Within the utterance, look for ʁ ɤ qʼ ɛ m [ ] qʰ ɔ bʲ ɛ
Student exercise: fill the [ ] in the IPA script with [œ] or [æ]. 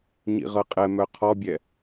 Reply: œ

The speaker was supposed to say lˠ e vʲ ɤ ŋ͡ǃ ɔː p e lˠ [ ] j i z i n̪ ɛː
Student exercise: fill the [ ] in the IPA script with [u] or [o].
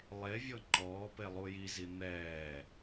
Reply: u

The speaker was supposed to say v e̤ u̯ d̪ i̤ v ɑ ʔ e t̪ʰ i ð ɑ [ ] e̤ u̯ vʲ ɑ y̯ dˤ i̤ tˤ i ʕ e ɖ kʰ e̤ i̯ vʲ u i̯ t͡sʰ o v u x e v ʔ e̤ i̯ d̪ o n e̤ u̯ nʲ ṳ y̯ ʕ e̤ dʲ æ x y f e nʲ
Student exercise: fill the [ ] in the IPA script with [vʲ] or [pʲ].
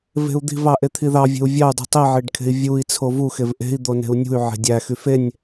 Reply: vʲ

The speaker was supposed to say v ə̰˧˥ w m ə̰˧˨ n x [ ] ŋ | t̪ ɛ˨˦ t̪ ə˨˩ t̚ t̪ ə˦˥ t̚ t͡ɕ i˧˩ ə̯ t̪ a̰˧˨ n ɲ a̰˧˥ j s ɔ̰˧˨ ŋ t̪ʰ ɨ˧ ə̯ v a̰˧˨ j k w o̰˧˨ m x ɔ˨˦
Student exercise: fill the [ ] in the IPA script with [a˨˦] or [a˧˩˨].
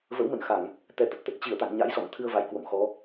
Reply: a˧˩˨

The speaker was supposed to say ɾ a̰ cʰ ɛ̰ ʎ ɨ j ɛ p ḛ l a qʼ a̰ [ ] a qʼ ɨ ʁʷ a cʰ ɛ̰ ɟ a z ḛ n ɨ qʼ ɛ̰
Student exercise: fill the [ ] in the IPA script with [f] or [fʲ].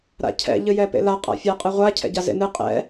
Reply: fʲ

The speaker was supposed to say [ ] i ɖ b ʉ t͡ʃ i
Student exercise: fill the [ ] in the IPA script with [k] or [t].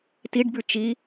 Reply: t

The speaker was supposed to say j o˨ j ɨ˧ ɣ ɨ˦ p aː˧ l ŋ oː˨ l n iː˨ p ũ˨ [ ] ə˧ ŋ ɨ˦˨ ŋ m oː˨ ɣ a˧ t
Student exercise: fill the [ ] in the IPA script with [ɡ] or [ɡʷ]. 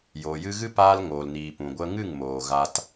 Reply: ɡʷ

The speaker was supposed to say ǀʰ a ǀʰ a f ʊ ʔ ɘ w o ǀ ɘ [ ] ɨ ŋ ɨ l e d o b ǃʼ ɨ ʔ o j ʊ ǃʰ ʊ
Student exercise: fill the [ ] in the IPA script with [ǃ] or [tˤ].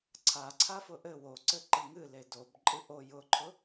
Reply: ǃ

